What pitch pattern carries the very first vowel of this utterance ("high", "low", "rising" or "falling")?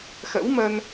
rising